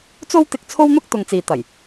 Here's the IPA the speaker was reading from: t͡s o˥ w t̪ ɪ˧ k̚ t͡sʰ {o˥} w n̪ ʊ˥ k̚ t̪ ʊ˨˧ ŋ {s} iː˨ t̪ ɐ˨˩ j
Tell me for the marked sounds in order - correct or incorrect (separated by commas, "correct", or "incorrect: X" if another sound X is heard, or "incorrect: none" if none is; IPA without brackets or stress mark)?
correct, incorrect: t͡s